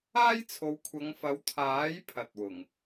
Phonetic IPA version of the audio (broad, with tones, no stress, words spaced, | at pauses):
aː˥jt͡sʰo˨˧wkʷʰɐ˨˧ŋ fɐ˨˧wt̪ʰaː˨˥j pʰɐ˨t̚wʊ˨˩ŋ